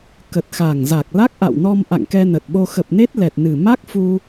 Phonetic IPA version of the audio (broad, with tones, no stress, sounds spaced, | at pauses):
k ə˨˩ t̚ x a˨˩ ŋ z a˨˩ k̚ l a˦˥ k̚ ʔ a̰˧˨ w n ɔ˧ m ʔ a̰˧˨ ŋ k ɛ˧ n ə˨˩ t̚ ɓ o˧ x ə˨˩ p̚ n e˦˥ t̚ l ɛ˨˩ t̚ n ɨ˨˩ m a˦˥ k̚ f u˧